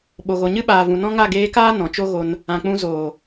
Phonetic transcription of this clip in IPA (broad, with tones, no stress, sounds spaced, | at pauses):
ɓ o˨ ɣ o˨ ɲ ɨ˦ ɓ aː˨ v ũ˨ n ɔ̃˦ ŋ a˦˨ ɡ eː˧ k aː˦ n ɔ̃˨ t͡ʃ o˦ ɣ o˧ n | ã˨ k͡p ũ˧ z oː˨